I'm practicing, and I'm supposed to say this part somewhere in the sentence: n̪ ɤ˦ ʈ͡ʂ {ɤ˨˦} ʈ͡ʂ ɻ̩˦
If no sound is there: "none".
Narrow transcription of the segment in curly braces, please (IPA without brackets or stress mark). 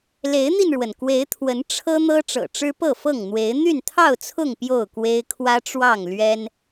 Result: ɤ̰˨˩